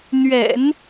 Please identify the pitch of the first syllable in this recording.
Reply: low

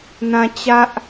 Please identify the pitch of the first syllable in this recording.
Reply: high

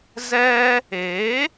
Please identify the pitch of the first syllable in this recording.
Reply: high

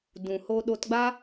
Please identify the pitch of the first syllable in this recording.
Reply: low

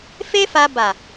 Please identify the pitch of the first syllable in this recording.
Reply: high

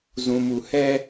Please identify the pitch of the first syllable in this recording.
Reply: low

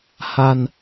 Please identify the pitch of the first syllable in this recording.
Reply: low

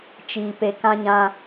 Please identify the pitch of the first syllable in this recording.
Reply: low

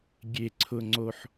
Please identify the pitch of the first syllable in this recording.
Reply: low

